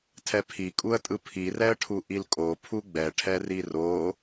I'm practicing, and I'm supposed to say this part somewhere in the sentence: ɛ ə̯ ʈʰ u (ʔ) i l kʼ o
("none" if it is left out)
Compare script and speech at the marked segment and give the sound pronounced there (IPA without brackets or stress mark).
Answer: ʔ